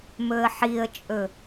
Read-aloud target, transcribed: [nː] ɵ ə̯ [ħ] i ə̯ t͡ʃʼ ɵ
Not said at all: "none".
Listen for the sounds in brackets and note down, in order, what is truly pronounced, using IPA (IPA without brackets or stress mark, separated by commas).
m, ħ